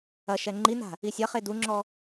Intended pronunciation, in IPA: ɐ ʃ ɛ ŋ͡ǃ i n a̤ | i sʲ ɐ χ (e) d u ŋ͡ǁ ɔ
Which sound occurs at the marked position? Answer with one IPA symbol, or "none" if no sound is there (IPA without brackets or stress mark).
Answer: e